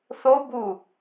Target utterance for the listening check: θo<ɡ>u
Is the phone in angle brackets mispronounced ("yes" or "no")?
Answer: yes